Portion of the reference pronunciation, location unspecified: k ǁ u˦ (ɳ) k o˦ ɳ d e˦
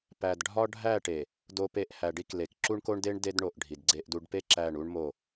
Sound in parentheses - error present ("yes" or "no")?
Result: no